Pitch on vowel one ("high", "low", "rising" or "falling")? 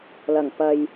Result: low